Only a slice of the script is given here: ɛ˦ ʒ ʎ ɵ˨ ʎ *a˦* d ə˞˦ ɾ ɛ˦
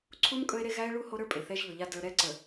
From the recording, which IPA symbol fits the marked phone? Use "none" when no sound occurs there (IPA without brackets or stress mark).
a˦